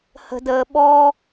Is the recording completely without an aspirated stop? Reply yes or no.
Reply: yes